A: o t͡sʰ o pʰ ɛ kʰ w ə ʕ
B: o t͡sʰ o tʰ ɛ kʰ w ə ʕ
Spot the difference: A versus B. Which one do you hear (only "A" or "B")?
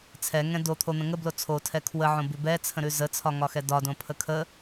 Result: B